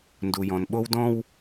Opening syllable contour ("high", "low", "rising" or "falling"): low